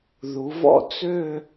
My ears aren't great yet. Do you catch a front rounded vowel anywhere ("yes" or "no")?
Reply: yes